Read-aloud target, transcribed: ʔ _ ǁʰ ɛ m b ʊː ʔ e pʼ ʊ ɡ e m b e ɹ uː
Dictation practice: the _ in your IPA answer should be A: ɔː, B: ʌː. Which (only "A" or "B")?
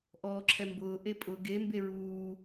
A